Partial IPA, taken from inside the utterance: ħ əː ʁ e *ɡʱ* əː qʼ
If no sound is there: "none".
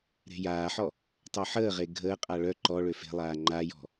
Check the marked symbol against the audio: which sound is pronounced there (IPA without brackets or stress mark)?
ɡʱ